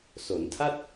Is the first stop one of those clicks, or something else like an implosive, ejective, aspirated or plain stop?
aspirated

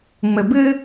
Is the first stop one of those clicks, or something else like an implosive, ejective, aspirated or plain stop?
plain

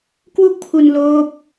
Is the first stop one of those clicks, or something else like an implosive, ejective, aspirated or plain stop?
plain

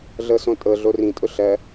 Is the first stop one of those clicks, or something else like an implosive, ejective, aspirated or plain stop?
ejective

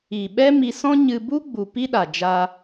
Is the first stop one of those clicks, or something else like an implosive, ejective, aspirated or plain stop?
implosive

